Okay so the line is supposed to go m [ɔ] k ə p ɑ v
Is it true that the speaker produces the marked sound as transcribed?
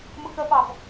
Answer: no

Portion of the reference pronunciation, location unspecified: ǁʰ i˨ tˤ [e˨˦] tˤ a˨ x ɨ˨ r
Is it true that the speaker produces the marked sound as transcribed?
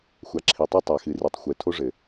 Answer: no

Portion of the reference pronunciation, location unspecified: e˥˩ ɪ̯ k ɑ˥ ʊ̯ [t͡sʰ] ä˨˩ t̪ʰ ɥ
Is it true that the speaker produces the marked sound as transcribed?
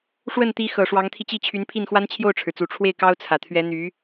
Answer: yes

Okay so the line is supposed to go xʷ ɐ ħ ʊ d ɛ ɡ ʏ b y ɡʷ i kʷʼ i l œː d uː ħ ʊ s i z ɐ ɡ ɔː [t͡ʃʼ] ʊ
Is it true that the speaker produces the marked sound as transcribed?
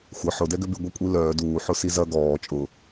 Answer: yes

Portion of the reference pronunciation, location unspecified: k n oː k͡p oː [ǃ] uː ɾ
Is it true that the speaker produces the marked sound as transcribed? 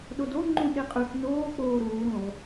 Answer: no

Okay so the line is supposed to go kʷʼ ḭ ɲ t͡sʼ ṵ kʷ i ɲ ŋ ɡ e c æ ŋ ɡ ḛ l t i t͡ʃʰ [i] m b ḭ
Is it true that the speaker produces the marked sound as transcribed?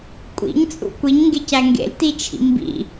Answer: no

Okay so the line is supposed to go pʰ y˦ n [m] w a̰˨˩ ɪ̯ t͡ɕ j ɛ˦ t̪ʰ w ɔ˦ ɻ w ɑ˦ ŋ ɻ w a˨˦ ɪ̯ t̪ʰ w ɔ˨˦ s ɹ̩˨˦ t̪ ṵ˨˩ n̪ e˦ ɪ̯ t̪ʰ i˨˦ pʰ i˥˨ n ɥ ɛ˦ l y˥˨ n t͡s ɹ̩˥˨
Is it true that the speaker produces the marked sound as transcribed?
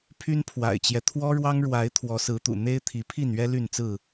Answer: no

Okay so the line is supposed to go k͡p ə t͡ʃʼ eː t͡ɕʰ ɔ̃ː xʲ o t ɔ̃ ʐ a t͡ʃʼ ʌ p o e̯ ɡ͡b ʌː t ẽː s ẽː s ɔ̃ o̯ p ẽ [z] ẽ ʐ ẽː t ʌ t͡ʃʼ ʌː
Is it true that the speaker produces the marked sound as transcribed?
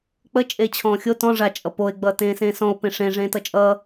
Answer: no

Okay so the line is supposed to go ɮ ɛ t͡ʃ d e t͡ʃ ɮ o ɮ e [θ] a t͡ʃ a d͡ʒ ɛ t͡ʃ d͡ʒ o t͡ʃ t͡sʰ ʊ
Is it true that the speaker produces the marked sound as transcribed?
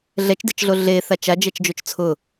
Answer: yes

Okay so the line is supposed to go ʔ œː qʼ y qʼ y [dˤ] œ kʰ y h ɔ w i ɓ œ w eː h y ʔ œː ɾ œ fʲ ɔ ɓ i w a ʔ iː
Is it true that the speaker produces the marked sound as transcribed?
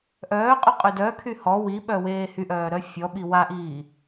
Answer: no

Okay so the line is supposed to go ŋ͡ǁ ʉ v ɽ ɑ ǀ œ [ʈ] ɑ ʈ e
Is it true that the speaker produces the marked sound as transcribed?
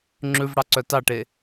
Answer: no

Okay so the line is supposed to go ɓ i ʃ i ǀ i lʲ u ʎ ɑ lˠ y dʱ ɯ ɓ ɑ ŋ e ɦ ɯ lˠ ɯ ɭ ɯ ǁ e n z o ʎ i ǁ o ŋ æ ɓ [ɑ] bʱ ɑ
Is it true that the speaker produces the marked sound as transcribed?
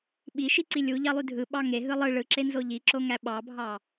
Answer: yes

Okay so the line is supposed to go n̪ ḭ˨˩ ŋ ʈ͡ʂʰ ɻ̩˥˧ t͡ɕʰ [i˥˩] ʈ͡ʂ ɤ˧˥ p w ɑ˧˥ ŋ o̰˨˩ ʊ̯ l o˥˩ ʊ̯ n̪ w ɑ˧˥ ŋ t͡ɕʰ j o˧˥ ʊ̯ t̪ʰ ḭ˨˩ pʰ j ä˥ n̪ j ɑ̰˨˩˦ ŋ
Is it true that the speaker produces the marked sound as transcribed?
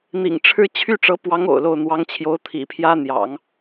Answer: no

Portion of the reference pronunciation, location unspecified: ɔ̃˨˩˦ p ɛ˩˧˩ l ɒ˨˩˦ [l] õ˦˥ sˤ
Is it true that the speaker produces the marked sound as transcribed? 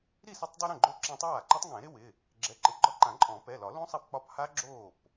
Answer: yes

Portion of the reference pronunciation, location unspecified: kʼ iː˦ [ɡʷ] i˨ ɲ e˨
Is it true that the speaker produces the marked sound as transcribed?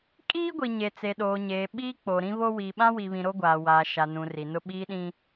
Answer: yes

